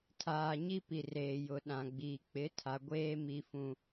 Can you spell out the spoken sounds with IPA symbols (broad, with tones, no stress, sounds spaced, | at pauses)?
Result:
tʰ aː˨ ɲ i˦ p i˨ r eː˨ j ʊ˨ ɗ ã˨ ɡ͡b iː˨ k͡p ɪ˨˦ tʰ a˨ ɡʷ eː˦ m i˦ f ũ˦